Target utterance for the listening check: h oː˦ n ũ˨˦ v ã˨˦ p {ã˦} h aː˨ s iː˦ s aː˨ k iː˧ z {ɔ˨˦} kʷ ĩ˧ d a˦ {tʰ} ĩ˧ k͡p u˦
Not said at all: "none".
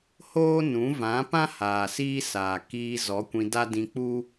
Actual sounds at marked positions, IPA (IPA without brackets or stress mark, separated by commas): ã˦, ɔ˨˦, d